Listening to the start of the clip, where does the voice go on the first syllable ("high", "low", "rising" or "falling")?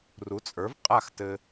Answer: rising